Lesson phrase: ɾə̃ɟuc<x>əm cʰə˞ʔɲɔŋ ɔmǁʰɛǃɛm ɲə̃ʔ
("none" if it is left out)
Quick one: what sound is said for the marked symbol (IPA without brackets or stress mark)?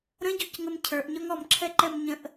ŋ